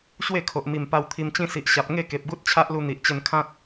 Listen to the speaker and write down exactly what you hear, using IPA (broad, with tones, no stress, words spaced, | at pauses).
ɕwe˥˧kʰo˨ʔ mi˨˩mpa˧wt̪ʰi˧mt͡ɕĩ˥˧ si˨ʔɕa˨p̚ ŋe˥˧ ke˨p̚ɡu˦t̚t͡ɕʰa˦ʔlu˧ n̪i˨ʔt͡ɕə˧nkʰã˦t̚